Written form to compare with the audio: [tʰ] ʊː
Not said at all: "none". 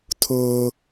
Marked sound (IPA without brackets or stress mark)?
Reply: tʰ